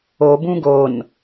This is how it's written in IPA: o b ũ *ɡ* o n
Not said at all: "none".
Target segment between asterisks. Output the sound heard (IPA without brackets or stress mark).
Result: ɡ